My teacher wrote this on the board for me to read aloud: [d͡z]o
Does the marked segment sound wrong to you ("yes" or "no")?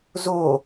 yes